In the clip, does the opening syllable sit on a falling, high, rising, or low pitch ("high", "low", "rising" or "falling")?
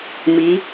rising